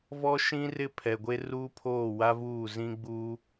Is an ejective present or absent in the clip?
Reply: absent